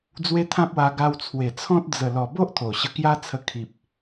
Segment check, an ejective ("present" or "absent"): absent